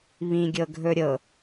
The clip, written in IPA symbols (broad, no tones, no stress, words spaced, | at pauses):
βĩɡʲɤɡʱɵ ɾʲɤ